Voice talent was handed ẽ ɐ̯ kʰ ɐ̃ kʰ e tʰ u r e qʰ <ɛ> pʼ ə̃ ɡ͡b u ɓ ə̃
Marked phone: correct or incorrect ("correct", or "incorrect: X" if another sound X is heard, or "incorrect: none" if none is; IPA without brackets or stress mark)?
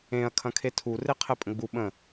correct